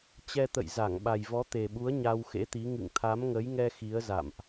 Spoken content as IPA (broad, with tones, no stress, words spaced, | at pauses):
t͡ɕɛ˧t̪ə̰˧˨jza˧˩ŋ ɓa˨˩jvɔ˨˦t̪e˨˩ɓu˨˦ə̯ ɲa˧wxḛ˧˥t̪i˨˦ ŋɨ̰˧˨ŋt̪ʰa˨˦mŋə˨˦jŋɛ˧ xi˨˦ə̯za̰˧˨mʔ